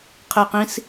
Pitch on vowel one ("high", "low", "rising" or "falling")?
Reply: low